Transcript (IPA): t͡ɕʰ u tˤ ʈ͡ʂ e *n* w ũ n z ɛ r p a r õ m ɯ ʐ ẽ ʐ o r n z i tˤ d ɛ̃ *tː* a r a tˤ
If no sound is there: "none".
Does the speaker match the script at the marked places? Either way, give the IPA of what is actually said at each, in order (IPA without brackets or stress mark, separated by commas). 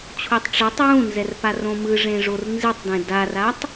tˤ, d